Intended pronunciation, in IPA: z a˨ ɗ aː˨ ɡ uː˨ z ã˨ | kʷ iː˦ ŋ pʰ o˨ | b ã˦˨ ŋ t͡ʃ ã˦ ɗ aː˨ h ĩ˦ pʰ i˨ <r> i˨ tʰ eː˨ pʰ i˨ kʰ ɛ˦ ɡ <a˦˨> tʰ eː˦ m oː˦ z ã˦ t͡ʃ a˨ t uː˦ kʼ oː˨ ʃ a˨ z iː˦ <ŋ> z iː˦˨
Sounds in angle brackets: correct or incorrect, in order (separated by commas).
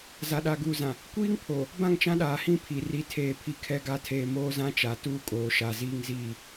correct, correct, correct